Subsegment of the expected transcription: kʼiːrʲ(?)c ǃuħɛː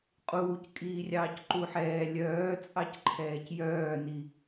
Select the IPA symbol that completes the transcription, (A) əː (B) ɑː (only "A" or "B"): B